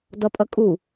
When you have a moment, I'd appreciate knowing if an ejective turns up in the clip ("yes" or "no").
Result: yes